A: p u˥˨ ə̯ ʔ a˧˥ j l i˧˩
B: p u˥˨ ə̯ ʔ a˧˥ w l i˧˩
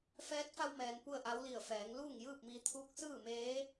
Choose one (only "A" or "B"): B